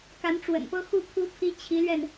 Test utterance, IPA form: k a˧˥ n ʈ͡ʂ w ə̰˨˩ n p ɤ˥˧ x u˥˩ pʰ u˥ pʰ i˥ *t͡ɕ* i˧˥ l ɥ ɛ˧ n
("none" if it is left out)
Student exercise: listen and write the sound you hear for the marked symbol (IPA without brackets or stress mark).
t͡ɕʰ